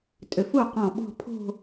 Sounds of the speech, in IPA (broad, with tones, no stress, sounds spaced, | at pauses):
tʼ ʏ˩˧ f u˥˩ q ɔ̃˧˩ ɓ ɔ̤˥˧ pʰ o̤˥˧